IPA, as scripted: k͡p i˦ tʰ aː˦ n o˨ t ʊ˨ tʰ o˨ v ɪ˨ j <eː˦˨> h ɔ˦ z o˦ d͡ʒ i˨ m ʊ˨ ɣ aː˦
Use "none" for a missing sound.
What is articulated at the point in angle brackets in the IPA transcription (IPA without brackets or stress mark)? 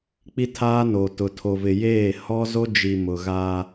eː˦˨